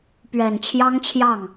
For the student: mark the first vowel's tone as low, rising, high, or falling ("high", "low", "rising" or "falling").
low